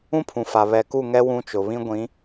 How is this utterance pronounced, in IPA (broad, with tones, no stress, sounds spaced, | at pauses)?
ũ˦ pʰ ũ˨ f a˨ β ɛ˨ k u˦˨ ŋ ɛ˦ w ũ˦ t͡ʃ ʊ˨ β ĩ˦ ɡʷ ĩ˨˦